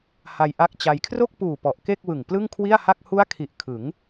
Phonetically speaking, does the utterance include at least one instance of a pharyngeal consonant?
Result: no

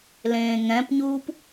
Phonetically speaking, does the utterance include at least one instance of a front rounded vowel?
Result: no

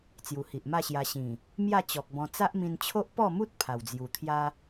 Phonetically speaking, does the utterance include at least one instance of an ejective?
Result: no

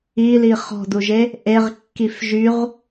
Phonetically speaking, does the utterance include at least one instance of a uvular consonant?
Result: yes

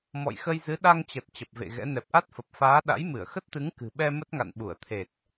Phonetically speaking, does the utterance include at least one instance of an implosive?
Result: yes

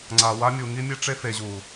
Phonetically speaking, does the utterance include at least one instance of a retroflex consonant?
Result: yes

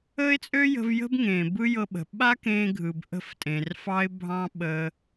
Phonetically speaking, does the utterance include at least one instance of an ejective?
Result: yes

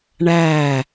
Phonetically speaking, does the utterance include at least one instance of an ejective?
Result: no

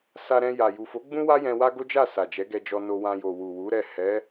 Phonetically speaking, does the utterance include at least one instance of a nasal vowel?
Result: yes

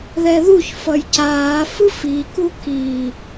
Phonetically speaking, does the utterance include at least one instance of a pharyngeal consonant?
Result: no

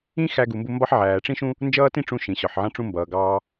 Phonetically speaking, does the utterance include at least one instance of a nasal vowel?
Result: yes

